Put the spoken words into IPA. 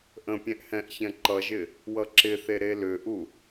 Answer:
ʔ ə̃ pʲ ɛ̃ ʔ h ɛ̃ ʔ ç ɛ̃ ǃ ʌ ʒ ɪ | w ʌ ǁ ɪ θ e ɾ e l ʏ ʔ u

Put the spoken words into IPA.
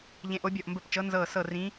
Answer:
ʎ ẽ˨˦ ʔ o˨˦ bʲ ɔ˧˩ ʔ m b ə˧˩ p t͡ʃ ɤ˨˦ n z ɤː˧˩ s ɤ˧˩ r ĩ˨˦

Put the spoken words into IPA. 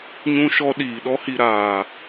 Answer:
ɲ ũ˧ ʃ ɔ˧ ɗ iː˨ ɗ ɔ˧ h i˨ ɾ aː˨

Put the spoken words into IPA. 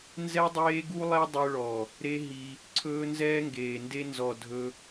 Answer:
n z ɛ˦ dˤ eː˦ ɡ u˦ lˠ e˦ dˤ ɵ˧ ɭ ɔ˨ | ɾ e˦ ɦ i˧ | ǀʰ ɵː˦ n z ɛː˦ ŋ ɡ eː˨ n d e˦ n z ɔ˨ dʱ ɵ˧

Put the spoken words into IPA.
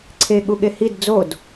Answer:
ǀʰ e ɠ u ɠ e h i d d͡z o d

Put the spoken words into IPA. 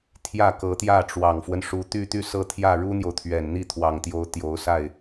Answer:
t̪ʰ j ä˥˩ k ɤ˧˥ t̪ j ä˥˩ ʈ͡ʂ w ɑ˨˩ ŋ f w ə˦ n ʂ u˧˥ t̪ y˥˧ t̪ y˥˧ s ɤ˥˧ t̪ʰ j ä˥˩ ɻ u˥ n̪ j o˨ ʊ̯ t̪ʰ ɥ ɛ˨˩ n n̪ i˥˩ t̪ʰ w ɑ˨˩ ŋ t̪ j o˧˥ ʊ̯ t̪ j o˧˥ ʊ̯ s a˥˩ ɪ̯

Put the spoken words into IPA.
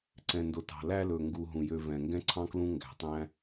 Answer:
ǀ ɛ̃˩ n d o˩ t ɑ̤˩ l æ˥ l ɵ˩ ŋ ɡ u˨ ɦ ũ˩ j ø˨ v ɛ̃˩ ŋ ɡ ɛ̃˦ ǀʰ ɑ̃˥ k l ũ˦ ŋ ɡ æ̤˩ tˤ æ̃˦

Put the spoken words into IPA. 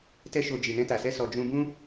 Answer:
t ɛ˦ ʃ o˧ d͡ʒ i˨ n ɛ̃˧ t a˨ s ɛ˧ s ɔ˨ d͡ʒ ũ˧ b ũ˦

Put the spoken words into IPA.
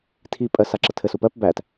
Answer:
tʰ i pʼ ɜ s a ǁ ə tʰ ɘ s u p ɜ p b æ t

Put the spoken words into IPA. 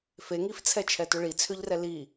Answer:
f e ŋ i f t͡sʰ ɛ t͡ʃʰ ɛ t ʏ ɭ i t͡sʰ ʏ ʎ r ɛ l i

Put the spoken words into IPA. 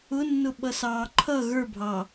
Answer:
ʊ nː ʊ ɓ ʌ s ɑː ǃʰ ʌ ɣ ə˞ bʱ ɑ

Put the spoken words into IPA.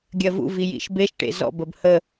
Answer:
ɡʲ ɜ v ṵ v i j ḭ ʃ b e ʃ ʈ ḛ z ɔ̰ b ə b h ə

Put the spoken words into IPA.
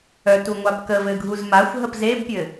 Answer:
œ t u ŋʷ a p k ə v ɘ ɡʱ u z m a xʷ ɦ ə p z e b pʲ ɘ

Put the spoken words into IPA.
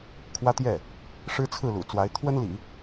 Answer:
kʰ w ä˥ t̪ j ɛ˥˩ | ʂ ɻ̩˥ t͡sʰ ɹ̩˥˩ l ṵ˨˩ t͡s w a˧˥ ɪ̯ t̪ʰ w ə˥ n l ḭ˨˩˦

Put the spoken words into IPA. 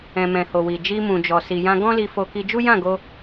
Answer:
ɛ̃˨ m ɛ̃˨ h o˨ w i˨ d͡ʒ i˧ m ũ˨ d͡ʒ ɔ˨ s i˨ j ã˧ ɡ ɔ̃˦ l i˧ f o˧ k i˧ d͡ʒ u˦ j ã˦˨ ɡ o˧

